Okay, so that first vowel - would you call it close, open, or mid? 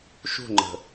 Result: close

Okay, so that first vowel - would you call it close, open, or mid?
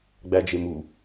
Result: open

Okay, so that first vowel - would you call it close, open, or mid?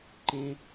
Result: mid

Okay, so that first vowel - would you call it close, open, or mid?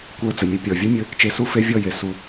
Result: mid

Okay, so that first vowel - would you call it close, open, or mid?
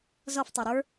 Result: mid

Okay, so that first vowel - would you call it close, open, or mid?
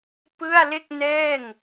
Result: close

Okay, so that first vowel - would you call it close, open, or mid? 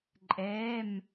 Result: mid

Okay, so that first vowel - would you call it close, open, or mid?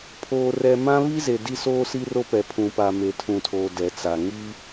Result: mid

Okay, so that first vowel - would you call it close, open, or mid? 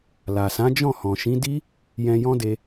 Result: open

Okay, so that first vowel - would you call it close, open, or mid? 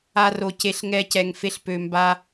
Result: open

